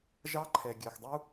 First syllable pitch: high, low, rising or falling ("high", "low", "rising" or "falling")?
high